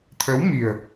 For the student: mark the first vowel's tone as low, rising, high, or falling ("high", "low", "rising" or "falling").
rising